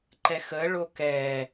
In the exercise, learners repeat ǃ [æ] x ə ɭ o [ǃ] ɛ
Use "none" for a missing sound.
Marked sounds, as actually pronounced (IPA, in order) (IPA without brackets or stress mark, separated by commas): ɛ, k